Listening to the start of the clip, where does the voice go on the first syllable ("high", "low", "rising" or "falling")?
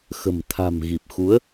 low